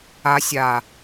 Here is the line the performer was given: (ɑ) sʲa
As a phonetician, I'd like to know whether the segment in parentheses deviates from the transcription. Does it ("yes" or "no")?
yes